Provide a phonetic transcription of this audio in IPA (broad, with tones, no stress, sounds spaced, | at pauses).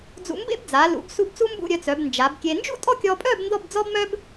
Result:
d͡z ṵ˧ m b ḛ˥ b d͡z a˩˧ l ṵ˩˧ b s u˧ b t͡s u˥ m b ṵ˥˧ ɾʲ œ˧ t͡s œ˩˧ b n d͡ʒ a˩˧ b kʲ e˧ n d͡ʒ ṵ˥ tʼ ɔ˥˧ kʲ ɔ˧ pʼ œ˥˧ b n d ɔ˥˧ b d͡z ɔ˥ b m œ˥ b